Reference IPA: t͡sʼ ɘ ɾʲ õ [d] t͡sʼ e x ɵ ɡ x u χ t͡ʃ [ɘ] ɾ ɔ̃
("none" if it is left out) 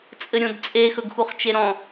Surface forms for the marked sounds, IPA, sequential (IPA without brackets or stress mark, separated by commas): d, e